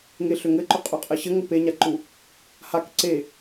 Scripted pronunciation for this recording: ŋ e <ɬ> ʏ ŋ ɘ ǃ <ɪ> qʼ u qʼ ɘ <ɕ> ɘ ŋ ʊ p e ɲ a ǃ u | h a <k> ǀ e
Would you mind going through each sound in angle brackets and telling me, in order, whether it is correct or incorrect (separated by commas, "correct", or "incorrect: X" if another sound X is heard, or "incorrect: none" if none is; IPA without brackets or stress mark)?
correct, incorrect: ʏ, correct, correct